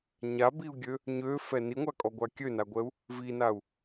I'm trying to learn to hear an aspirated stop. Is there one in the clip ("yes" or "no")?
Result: no